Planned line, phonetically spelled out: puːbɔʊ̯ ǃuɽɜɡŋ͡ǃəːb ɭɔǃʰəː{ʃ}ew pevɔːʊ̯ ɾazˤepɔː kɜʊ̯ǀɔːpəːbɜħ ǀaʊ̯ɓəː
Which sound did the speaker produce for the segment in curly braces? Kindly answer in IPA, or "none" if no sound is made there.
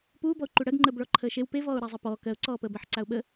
ʃ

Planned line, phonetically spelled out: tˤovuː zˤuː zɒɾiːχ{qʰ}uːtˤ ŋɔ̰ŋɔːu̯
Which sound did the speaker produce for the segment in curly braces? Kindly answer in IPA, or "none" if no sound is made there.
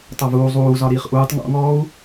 ʔ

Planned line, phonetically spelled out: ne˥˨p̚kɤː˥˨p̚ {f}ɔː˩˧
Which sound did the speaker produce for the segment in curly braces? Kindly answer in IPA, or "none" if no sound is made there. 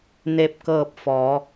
f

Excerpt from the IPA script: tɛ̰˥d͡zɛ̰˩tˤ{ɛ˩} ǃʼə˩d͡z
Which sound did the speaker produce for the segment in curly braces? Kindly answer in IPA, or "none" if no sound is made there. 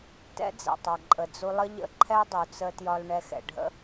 ɛ˩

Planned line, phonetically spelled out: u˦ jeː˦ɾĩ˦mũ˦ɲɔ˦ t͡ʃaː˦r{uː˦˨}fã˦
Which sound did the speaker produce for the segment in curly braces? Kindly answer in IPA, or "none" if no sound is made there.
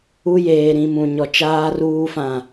uː˦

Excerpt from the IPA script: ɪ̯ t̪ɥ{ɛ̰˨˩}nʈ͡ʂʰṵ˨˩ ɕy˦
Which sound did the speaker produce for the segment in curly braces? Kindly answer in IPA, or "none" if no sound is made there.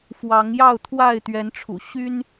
ɛ˨˦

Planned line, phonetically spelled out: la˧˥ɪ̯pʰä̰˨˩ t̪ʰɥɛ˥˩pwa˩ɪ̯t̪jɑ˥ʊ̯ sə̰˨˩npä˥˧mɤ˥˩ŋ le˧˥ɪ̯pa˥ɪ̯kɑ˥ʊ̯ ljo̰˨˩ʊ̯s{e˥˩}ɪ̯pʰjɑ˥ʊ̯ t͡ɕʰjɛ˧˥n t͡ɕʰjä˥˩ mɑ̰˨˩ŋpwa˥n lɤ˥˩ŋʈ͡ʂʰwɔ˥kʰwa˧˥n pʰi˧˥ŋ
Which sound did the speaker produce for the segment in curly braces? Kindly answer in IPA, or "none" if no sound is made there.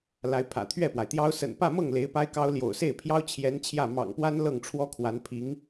e˥˩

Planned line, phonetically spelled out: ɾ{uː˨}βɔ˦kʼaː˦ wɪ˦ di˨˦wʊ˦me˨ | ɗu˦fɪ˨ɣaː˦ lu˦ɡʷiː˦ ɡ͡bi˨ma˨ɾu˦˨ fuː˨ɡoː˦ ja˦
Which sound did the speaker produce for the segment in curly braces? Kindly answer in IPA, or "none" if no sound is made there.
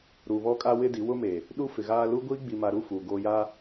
uː˨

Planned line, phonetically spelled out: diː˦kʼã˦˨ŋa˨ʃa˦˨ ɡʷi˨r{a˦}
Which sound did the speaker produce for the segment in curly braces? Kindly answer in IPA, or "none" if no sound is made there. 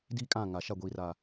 a˨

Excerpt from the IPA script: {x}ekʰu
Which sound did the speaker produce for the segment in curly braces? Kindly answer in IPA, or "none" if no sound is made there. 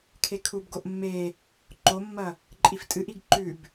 kʰ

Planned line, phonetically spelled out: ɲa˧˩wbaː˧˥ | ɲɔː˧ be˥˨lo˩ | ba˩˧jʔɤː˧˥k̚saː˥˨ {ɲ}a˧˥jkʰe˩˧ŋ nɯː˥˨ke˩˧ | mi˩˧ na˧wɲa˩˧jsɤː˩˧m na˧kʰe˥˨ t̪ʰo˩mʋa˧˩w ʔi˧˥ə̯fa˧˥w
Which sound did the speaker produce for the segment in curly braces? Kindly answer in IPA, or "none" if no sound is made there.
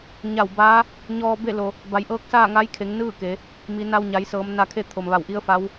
ŋ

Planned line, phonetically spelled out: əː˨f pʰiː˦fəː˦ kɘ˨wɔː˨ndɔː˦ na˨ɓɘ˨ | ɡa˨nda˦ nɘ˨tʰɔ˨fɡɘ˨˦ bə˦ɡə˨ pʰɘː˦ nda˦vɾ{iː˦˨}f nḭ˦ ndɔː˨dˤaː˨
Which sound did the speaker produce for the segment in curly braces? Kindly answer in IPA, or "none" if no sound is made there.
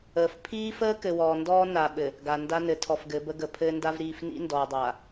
iː˦˨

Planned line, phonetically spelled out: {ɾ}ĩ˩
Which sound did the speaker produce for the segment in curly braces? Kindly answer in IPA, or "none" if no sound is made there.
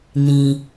n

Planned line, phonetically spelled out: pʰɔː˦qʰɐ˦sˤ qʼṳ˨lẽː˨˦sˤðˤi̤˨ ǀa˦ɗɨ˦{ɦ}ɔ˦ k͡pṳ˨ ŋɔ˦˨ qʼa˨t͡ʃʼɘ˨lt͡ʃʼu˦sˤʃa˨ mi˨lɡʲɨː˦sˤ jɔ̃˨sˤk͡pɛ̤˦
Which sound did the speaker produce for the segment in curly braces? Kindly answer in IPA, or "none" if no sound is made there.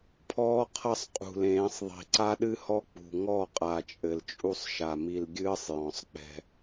h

